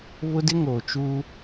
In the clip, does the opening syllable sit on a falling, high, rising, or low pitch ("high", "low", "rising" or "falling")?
high